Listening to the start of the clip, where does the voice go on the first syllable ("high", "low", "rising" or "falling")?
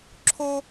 high